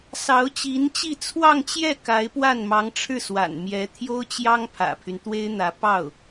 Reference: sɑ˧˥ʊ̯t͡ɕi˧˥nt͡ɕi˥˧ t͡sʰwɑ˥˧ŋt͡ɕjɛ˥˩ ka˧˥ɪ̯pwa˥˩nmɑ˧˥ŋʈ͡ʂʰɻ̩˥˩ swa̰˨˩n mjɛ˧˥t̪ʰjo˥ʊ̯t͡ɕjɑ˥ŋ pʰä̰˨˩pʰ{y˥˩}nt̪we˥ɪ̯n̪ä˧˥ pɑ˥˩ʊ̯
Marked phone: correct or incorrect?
incorrect: y˦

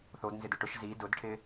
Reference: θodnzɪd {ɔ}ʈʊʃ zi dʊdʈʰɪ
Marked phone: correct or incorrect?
incorrect: ʊ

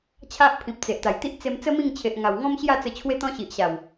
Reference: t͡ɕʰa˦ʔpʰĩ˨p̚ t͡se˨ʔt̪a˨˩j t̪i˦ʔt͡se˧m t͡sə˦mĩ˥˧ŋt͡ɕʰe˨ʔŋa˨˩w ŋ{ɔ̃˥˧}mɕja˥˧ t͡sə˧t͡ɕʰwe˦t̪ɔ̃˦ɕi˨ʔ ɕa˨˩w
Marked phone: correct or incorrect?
incorrect: ɔ̃˦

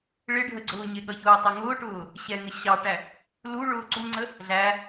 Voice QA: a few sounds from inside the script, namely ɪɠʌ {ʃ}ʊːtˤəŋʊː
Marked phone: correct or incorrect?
incorrect: ç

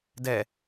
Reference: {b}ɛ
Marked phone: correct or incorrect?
incorrect: d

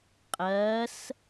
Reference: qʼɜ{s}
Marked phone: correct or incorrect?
correct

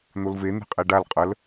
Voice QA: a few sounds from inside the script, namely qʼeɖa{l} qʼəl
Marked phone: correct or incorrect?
correct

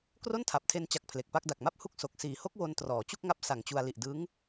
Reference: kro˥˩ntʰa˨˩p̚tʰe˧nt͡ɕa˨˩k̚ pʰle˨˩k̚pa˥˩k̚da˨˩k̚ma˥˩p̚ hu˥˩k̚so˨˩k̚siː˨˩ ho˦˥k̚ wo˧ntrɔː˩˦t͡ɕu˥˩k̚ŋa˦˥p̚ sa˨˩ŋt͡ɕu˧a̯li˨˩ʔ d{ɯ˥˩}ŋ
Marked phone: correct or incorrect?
incorrect: ɯ˦˥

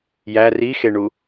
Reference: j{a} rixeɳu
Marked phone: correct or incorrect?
incorrect: æ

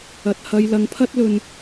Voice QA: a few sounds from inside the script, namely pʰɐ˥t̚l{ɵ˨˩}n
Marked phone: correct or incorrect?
incorrect: ɵ˧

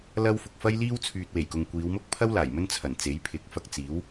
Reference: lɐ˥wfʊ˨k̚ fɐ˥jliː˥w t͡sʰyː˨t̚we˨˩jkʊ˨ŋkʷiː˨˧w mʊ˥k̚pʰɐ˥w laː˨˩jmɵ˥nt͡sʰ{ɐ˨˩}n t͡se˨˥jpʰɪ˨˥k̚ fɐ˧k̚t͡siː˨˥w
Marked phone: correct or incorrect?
correct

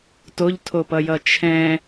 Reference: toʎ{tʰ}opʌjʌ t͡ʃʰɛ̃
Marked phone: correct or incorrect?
correct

